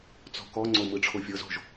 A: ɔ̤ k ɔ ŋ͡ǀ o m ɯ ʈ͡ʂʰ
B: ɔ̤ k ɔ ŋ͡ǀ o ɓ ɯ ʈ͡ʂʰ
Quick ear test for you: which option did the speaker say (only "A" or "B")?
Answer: A